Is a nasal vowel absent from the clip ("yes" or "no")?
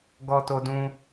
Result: no